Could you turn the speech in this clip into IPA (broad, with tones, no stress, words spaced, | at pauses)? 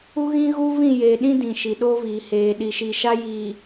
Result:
u˦ɣĩ˦ɣuː˦ vĩ˦˨jeː˨ɗĩ˦ dĩ˨ʃi˨ɗoː˦viː˨ heː˨ ɗi˨ʃi˨ʃa˦ jiː˨